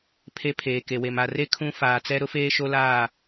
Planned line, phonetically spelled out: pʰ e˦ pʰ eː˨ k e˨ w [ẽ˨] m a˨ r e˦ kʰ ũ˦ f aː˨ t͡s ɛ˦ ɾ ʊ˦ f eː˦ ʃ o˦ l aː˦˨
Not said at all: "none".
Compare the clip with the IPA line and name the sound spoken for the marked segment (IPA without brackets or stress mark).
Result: e˨